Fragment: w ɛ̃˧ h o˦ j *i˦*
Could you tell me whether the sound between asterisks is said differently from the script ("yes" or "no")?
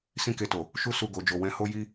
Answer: no